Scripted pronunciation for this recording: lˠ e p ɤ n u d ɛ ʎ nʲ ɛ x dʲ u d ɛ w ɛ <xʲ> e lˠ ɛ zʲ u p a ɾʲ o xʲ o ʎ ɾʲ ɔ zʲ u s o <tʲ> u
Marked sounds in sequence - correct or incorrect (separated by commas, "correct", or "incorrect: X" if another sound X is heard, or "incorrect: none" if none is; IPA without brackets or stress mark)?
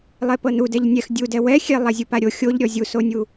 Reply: correct, incorrect: nʲ